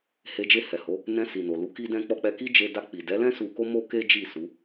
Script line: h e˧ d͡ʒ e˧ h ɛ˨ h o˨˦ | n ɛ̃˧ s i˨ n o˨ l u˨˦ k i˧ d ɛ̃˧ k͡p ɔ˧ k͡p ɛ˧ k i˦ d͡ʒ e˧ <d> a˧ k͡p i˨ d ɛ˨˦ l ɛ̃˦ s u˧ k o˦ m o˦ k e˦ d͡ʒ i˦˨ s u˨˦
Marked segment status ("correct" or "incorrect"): correct